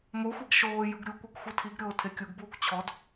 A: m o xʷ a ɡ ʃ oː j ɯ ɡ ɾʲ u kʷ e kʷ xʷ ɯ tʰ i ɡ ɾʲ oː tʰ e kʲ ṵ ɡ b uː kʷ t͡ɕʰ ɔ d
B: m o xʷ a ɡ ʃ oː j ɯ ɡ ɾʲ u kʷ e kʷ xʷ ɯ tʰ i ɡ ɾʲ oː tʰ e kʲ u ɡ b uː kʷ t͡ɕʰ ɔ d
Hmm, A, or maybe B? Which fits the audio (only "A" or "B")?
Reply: B